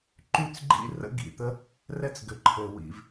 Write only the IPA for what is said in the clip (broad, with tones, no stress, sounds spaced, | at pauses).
ǃ y˥ t͡s ɡ͡ǃ ḭ˥ r ə̰˥ ɡ ḭ˩ t̪ ə˥ | r ɛ˥ t͡s ɡ ʏ˩ ǃʰ ɘ˩ w ḭ˩ v